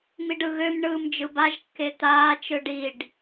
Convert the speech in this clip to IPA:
m i ɖ ɯ ɣ ø m ɳ ɯː m d͡ʒ ɯ b a ʒ kː e t̪ aː t͡ʃ ɯ ɖ i ɖ

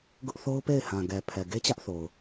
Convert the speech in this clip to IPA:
ɡ ʊ˦ ʔ θ o˦ ʊ̯ p e˦˨ ɪ̯ h ã˨ ɡ ɛ˨ pʰ ɛ˨ ɡ e˦ t͡ɕ ä˦ ʔ θ o˨ ʊ̯

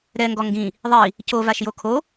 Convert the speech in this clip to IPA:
ɾ ɛ ŋ ɡ ɔ ŋ ɡ ĩ | ðˤ i | c o v a ʃ j o kʰ o

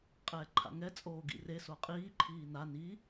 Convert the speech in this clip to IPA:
qʼ ɛː ǃʰ a̰ ŋ ɛ t͡sʼ oː ɡ ḭ r e s o qʼ iː ǃʰ iː n a n i

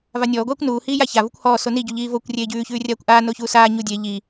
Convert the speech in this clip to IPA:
v a nʲ ɔː ɡʷ aː kʷ n uː h iː j a ç a v u kʷ h ɔː s o n i ɟ u ʎ iː v o kʷ rʲ eː ɟ ʉː ç ʉː rʲ aː kʷ ʔ aː n o ç uː s aː ɲ u dʲ e ʎ iː

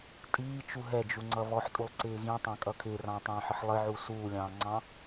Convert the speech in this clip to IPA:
tʼ iː t͡ʃ u ɦ ɛ d͡ʒ u ŋ͡ǀ ʌ β ɔ ħ tʼ u lˠ ǀ ɪː ɣ ĩ tˤ ɑ̃ kʼ ʌ kʰ ɪː r ɑ̃ tˤ ɑ̃ː ħ ə ħ lˠ ɪ ʕ u s uː lʲ ɑ̃ː ŋ͡ǀ ɑ̃

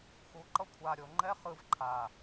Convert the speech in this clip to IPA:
x u ǃ ʌ kʷʰ a ɾʲ o ŋ͡ǃ ɛ χ ɯ v ǃʰ a

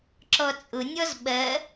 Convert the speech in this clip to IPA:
ǁ ɔ t͡sʼ ʊ nʲ ɔ z ɓ ɜ

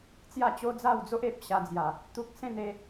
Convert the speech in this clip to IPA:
t͡s j a˥˧ t͡ɕ o˦ d͡z a˥˧ w d͡z o˦ ʔ e˨ p̚ ɕ a˧ d͡z j a˨˩ | t̪ u˦ k̚ s ẽ˥˧ n e˧

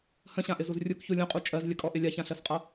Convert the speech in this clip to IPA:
h ə̃ ɕ ã ʔ ɪ z u z rʲ u k ç u lʲ ũ qʼ u t͡ʃʼ ɜ z lʲ ə kʼ ɔ ʔ ɪ lʲ a ç ã ɬ ɜ s qʼ ʌ

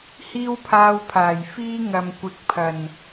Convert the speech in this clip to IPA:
h iː˥ w pʰ aː˧ w pʰ aː˨˩ j f iː˥ ŋ ɐ˨ m kʷ ɪ˨˥ k̚ pʰ ɐ˨˩ n

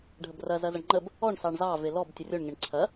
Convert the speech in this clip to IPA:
ɖʱ ə b r ɐ z ɐ z ɐ ɳ ŋ͡ǃ ə b | ɔ ɳ s ɑ ɳ z ɑ v e l ɔ b tʲ ə rʲ o ɳ ŋ e ɳ ǀʰ ɐ

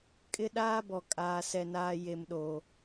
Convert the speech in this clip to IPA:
kʼ ɪ˦ ɗ aː˦ b ɔ˨ kʼ aː˨ s ɛ˨ n aː˨ j e˨ m ɗ o˨

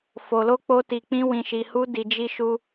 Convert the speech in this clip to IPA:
f o˨ l o˧ k͡p o˦ t i˧ k͡p ĩ˦ w ĩ˧ ʃ i˧ h u˦ d i˧ d͡ʒ i˧ ʃ u˧

